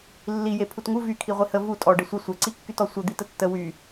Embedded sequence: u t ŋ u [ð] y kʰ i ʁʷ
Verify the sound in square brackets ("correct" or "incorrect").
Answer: incorrect